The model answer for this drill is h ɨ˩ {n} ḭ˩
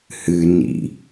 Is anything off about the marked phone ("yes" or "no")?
no